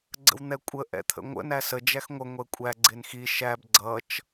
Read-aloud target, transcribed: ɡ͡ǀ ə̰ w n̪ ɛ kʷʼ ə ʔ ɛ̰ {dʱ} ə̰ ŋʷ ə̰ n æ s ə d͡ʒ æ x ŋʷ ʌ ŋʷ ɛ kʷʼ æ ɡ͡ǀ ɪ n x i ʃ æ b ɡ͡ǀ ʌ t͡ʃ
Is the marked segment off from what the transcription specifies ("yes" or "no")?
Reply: yes